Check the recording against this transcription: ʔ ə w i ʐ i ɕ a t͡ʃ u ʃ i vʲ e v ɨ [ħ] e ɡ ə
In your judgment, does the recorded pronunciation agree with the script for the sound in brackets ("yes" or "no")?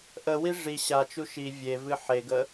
yes